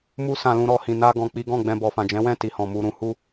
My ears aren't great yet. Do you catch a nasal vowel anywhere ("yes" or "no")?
yes